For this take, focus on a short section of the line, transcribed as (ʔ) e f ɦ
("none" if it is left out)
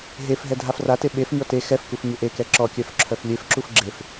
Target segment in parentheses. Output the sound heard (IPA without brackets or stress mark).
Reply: ɦ